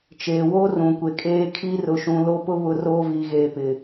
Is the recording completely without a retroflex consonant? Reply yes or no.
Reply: yes